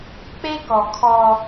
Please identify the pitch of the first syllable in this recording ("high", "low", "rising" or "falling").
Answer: high